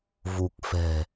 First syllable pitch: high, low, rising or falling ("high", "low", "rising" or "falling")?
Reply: low